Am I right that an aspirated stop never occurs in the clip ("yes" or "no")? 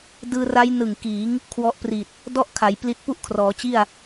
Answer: no